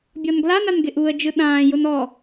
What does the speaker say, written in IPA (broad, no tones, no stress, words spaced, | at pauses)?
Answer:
bʲɔnɡlanan ɡɪʔuə̯d͡ʒɯ ɗãːjʊn ɔ